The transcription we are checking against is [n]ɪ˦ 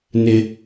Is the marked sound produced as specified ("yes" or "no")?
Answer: yes